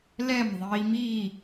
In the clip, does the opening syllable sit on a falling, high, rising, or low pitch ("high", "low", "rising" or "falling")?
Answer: falling